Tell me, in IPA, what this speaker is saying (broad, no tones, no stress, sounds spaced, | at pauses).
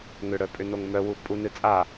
ŋ ʏ ɽ œ pʼ ʏ n o ŋ m œ w u pʼ u n ɨ t͡sʼ a